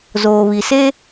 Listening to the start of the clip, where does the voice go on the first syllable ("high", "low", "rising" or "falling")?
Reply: low